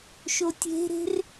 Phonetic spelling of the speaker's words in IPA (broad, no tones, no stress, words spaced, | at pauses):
ʃotʲe̤ɾe̤r